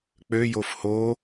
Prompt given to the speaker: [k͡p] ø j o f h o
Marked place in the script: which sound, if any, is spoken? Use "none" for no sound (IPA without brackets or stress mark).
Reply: k͡p